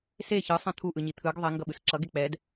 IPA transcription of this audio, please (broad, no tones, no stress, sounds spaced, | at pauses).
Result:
s e ç ɯ sˤ ɛ̃ t̪ʰ u ʔ ɯ ɲ i t̪ʰ ɯ ɡ ðˤ ɛ ŋ ɡ ʌ ɓ ɯ s ǁ ʌ ɡ e k͡p ɛ d